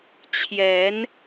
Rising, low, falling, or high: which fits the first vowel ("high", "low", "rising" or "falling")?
rising